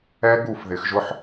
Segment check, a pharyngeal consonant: present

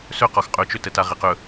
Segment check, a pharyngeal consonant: absent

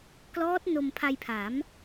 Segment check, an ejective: absent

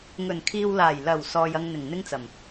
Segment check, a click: absent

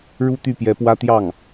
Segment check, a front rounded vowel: present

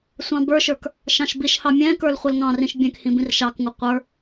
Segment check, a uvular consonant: present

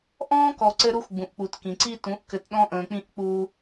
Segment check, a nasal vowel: present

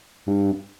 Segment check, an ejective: absent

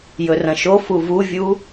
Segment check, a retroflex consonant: absent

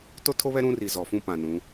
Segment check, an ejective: absent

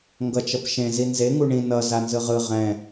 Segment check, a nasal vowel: present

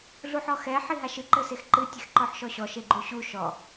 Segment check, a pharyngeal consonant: present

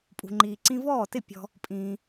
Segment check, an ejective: present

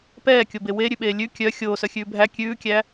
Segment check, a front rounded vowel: present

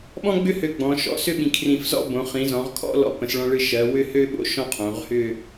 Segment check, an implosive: present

